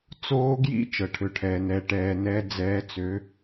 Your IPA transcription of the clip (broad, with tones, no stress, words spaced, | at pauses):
t͡soː˦˥ɡjḭ˦˥ t͡ʃɤ˩ʈʰø˩ʈʰɛː˩nɛː˩ ʈɛː˩nɛ˩˧ d͡zɛː˩˧t͡sø˩˧